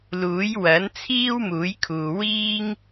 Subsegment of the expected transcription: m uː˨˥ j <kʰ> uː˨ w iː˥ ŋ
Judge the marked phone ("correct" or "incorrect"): correct